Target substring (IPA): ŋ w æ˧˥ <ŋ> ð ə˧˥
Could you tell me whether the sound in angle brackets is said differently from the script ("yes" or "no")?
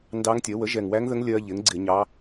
no